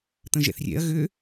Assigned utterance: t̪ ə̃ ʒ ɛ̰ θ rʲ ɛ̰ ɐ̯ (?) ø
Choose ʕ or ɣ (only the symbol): ɣ